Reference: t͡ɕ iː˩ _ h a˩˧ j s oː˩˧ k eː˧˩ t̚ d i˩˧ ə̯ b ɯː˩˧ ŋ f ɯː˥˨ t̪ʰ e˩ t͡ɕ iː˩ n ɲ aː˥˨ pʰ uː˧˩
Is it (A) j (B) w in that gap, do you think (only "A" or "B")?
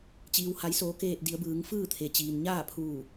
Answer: B